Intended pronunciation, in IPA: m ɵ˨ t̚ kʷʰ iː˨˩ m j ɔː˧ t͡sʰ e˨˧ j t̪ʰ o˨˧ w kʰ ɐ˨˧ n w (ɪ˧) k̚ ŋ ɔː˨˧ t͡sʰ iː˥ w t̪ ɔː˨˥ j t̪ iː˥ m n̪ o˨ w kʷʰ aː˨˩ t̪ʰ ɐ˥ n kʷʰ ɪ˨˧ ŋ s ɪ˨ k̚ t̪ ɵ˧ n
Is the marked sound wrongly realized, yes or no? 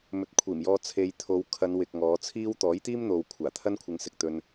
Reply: yes